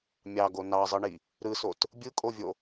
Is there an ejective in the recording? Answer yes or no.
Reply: yes